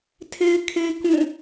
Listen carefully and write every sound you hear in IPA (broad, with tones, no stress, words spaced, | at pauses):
tʰe˦ɪ̯kʰe˦ kũ˦˨